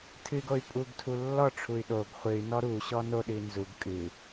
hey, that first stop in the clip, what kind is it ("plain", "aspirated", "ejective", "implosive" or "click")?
aspirated